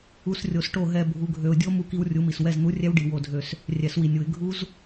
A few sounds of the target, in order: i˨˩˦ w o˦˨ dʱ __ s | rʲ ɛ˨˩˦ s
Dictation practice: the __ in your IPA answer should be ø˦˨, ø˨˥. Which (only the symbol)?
ø˦˨